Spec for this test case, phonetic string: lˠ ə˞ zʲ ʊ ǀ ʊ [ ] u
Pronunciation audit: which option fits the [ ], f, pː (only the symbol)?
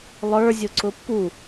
pː